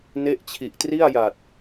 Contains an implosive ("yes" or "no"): no